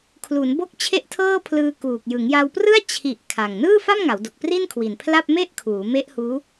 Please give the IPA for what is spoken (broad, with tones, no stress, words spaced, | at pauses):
kʰlu˩˦nbo˦˥k̚ t͡ɕʰe˥˩ʔtʰɤː˥˩pʰlɯː˧ kuː˨˩k̚ jɯ˩˦ŋja˧wprɯ˥˩a̯ t͡ɕʰi˨˩ʔ kʰa˨˩ŋ nɯː˥˩fa˥˩mŋa˩˦wdo˨˩k̚ pri˥˩nkʰwi˨˩npʰla˥˩p̚ me˥˩ʔkʰuː˩˦me˦˥ʔhuː˦˥